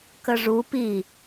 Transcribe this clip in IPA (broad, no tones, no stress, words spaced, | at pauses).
kəʐu pi